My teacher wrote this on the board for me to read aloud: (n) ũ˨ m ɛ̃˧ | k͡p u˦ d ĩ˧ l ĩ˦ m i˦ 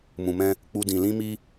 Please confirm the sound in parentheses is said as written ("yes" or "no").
no